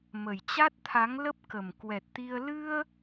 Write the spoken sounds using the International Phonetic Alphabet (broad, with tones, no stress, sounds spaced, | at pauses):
m ə˨˩ j t͡ɕ a˦˥ t̚ t̪ʰ a˨˦ ŋ l ə˦˥ p̚ k ə˨˩ m k w ɛ˨˩ t̚ t̪ i˧ ə̯ l ɨ˧ ə̯